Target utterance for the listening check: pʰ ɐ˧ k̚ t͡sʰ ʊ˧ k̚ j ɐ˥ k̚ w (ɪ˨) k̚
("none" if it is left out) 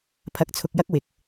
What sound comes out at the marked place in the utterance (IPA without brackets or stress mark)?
ɪ˨